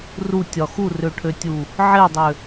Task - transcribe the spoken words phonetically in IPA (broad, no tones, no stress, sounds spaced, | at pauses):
r u tʲ ɒ x u r ø ʈʰ ø tʲ u | ʕ e dˤ ø